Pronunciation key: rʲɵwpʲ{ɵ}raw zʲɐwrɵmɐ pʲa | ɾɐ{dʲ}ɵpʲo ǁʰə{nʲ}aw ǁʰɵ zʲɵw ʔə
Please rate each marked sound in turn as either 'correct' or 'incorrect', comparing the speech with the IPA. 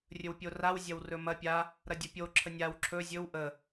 incorrect: o, correct, correct

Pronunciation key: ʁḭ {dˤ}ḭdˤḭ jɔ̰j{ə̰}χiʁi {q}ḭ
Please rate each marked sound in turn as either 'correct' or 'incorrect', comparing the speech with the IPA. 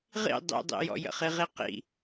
correct, correct, correct

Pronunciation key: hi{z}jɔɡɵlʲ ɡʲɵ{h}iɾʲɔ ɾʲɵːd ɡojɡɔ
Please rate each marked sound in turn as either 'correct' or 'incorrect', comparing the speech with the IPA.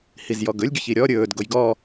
correct, incorrect: ç

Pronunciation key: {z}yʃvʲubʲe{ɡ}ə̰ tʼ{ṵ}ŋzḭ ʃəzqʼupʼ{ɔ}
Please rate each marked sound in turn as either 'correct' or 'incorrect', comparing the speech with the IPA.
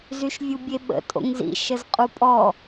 correct, incorrect: ɓ, incorrect: o̰, correct

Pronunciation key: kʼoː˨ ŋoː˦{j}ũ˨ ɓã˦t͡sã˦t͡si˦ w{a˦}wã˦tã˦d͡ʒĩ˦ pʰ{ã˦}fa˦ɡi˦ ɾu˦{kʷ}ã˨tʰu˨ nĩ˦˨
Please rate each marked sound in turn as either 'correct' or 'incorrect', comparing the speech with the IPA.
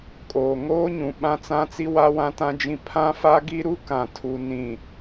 incorrect: ɲ, correct, correct, incorrect: k

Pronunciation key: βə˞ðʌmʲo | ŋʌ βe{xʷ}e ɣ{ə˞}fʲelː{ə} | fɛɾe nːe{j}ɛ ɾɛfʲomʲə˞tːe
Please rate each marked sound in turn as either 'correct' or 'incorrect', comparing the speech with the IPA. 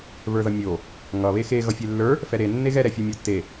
incorrect: x, incorrect: ʌ, incorrect: ə˞, incorrect: ɣ

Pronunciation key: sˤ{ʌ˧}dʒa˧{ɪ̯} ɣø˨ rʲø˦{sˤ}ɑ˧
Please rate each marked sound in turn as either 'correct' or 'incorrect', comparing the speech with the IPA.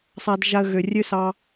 incorrect: a˧, incorrect: ə̯, incorrect: s

